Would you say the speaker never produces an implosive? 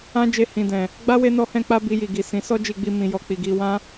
yes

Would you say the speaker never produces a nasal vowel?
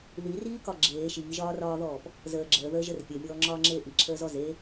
yes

